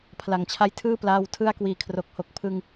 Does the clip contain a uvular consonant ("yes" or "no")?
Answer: no